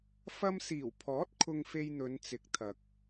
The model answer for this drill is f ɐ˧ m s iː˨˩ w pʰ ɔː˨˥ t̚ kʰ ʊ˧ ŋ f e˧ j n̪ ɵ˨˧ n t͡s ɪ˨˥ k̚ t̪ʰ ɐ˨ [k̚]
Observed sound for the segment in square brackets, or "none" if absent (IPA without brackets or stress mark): k̚